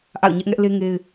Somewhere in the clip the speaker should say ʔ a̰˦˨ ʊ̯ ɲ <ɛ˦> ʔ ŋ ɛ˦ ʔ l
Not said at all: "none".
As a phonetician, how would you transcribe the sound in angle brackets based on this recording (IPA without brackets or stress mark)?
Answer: ɛ˦